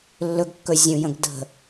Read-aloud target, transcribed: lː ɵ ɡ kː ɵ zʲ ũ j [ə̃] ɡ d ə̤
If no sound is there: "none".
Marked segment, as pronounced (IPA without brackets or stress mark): ə̃